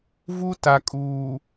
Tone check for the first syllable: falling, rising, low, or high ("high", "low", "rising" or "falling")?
high